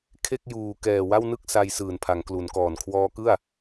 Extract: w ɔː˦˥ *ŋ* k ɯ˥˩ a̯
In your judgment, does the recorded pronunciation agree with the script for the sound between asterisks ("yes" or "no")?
no